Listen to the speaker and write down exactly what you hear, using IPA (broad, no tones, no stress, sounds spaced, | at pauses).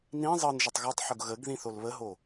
n ĩ zˤ ɤ n ʒ ə tˤ ɣ ɔ tˤ ħ o ɡ ɣ ə ɡ ð ĩ θ o l β ə ɦ o